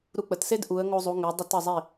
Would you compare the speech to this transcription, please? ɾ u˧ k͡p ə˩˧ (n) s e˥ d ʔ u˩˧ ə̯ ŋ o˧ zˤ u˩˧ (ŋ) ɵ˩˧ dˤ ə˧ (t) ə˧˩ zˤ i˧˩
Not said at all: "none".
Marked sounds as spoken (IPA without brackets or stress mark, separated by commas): t, ŋ, t